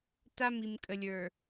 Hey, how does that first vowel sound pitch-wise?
high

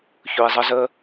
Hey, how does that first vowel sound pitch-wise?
low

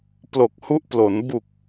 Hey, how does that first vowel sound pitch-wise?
low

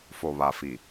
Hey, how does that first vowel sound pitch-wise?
low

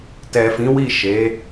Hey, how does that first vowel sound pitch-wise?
low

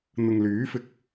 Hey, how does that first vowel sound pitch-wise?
low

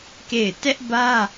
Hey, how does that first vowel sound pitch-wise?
falling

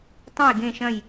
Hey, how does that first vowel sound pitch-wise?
falling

